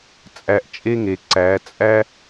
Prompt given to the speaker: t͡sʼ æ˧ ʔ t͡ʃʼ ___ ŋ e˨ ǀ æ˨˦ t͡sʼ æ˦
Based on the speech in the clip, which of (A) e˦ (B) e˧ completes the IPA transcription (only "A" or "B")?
A